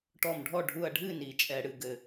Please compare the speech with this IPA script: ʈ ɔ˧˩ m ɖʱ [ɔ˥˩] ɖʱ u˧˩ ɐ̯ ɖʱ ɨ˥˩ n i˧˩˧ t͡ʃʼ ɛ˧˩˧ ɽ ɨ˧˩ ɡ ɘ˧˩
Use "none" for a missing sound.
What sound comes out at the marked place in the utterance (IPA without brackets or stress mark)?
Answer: ɔ˥˩